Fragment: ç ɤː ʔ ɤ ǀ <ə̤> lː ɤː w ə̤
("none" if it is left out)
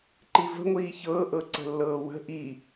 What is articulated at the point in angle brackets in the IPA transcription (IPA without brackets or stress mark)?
ə̤